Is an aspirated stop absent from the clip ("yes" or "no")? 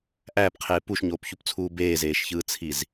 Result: no